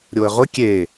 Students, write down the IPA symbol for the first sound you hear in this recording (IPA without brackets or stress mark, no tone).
ɾʲ